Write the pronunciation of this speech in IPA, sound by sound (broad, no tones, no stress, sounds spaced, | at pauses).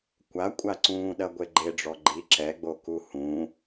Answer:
kʷ a kʷʼ a ǀ ũː ɗ ɐ ɡʷ e ɡ͡ǃ e ɖ͡ʐ ɔ ɡ͡ǃ i ǁ ɛ ɡ͡b o k u h ũ